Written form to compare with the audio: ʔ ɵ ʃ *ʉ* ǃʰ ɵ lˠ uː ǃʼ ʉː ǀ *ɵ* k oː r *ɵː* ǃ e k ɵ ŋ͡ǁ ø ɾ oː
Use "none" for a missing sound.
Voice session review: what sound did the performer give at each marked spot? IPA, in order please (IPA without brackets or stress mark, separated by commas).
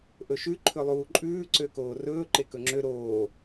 ʉ, ø, ɵː